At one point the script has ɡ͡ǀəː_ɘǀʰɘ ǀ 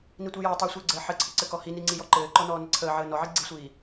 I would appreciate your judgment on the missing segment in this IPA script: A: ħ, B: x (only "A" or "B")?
A